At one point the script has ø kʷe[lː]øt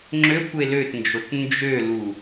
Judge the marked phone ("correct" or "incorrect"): incorrect